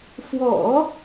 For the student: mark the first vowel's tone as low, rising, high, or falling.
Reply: low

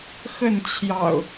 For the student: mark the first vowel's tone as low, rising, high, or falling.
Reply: falling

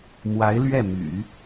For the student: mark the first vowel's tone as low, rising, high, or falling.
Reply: rising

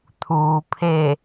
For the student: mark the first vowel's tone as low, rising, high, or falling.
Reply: low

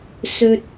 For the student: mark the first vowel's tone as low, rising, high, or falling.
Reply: high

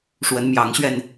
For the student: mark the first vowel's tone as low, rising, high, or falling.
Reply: rising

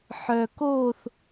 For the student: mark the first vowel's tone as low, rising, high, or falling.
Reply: low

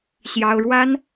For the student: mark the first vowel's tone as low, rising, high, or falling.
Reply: high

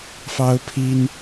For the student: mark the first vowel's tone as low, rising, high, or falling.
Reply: high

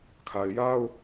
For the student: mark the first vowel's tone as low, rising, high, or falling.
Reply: low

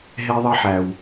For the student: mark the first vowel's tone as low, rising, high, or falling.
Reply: high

